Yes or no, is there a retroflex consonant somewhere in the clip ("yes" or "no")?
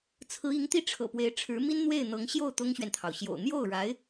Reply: yes